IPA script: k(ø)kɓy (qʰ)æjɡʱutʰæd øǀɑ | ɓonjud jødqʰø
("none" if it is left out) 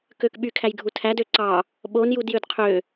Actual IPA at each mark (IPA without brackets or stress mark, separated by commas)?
ø, kʰ